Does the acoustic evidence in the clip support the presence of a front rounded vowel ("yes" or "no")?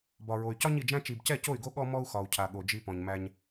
yes